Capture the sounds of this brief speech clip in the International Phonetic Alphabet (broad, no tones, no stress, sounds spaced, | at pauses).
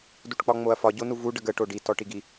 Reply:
d u ʈ k͡p ɒ ŋ͡m o ɐ̯ f ɒ ɟ o n u v u ɖ ə ɡ ə ʈ o ɖ i t ɔ ʈ i ɡ i